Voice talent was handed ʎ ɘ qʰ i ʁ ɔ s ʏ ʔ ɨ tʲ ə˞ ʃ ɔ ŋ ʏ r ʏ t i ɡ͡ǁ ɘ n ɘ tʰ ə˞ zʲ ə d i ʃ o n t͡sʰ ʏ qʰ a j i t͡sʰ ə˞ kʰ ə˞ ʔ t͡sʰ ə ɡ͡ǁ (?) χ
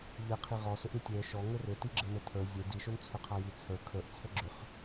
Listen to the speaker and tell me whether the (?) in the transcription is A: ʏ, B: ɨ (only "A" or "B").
A